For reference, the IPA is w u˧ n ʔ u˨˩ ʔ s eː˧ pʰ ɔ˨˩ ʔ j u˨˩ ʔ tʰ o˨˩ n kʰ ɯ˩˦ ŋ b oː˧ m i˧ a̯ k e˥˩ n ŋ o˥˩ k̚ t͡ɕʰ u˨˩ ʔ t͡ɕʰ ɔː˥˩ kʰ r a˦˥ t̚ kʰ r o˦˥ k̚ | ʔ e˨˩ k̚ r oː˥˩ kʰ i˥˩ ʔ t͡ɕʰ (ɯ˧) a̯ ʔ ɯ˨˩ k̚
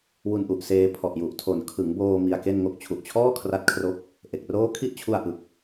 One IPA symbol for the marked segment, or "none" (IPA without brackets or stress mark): u˧